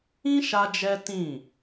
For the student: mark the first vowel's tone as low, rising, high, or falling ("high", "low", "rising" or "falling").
high